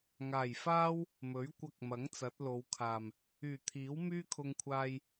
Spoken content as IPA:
ŋ aː˨˩ j f aː˥ w | m ɵ˨˥ ɥ kʷ ɐ˧ k̚ m ɐ˨˥ ŋ t͡s ɐ˨˥ t̚ l o˨˧ w kʰ aː˨˩ m | yː˨˩ t̪ʰ iː˨˥ w m yː˥ kʰ ʊ˧ ŋ kʷʰ aː˧ j

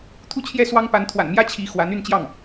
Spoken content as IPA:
t̪ʰ u˥˧ t͡ɕʰ j ɛ˥˩ s w ɑ˥ ŋ p a˧˥ n t̪ʰ w a̰˨˩ n m j ä˥ t͡ɕʰ i˧˥ x w a˧˥ n y˥˧ n t͡ɕ j ɑ˥˩ ŋ

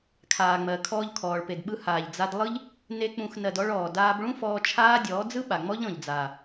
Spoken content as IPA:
kʰ aː˨ ŋ͡m ɜ˨ kʰ ɔː˧ ʎ kʰ ɔː˨ ɭ p e˨ d ɓ ɯ˧ h aː˨ ʎ d͡z a˧ d lˠ ɯ˧ ʎ | n e˧ k͡p ũ˨ x n ɜ˨ d ɔ˧ ɭ ɔː˨ d aː˧ b ɭ ũ˦ f ɔː˧ t͡ʃʰ aː˦ dʲ ɔː˨˦ d͡z ɯ˦ ɓ a˨ ŋ͡m ɔ˦ ʎ ɔ̃˨ ʎ d͡z aː˨

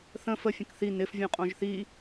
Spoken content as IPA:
θ ə̃ f ə fʲ ə̃ k θ i n ɪ f vʲ ũ qʼ õ ʒ θ i

